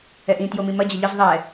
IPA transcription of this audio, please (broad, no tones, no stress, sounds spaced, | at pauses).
ɛ ʔ ĩ t j o m ĩ m ɐ d͡ʑ ɐ ʎ ə z ðˤ ɛ